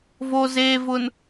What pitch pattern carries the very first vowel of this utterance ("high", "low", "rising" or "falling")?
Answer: low